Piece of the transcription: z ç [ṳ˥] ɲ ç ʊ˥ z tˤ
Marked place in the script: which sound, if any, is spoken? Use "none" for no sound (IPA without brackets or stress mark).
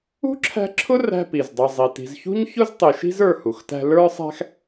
ṳ˥